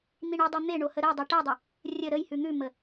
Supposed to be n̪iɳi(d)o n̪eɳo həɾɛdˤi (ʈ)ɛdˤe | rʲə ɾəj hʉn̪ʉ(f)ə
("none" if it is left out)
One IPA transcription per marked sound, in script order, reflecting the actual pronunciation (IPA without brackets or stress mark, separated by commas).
dˤ, ʈ, m